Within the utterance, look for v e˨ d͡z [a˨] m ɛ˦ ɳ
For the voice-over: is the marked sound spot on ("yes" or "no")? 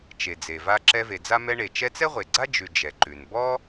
no